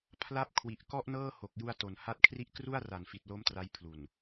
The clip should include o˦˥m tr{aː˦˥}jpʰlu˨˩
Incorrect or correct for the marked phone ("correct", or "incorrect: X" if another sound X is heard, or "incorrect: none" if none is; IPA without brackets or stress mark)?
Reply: incorrect: a˦˥